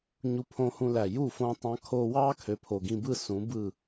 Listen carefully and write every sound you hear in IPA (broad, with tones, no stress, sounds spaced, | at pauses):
ɲ u˧ pʰ õ˧ h ũ˧ l æ˨ j u˦˨ f õ˦ tˤ ɑ̃˦ kʰ oː˧ w ɑː˦ kʰ ø˨ pʰ o˨ ɡ ĩ˧ b ɯ˦˨ s ũ˨˦ b ɯ˦˨